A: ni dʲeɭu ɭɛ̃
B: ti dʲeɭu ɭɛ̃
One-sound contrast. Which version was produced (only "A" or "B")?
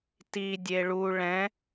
B